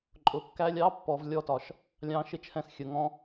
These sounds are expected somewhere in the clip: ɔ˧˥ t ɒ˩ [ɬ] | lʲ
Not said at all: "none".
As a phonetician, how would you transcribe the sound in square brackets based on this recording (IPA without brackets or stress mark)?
ʃ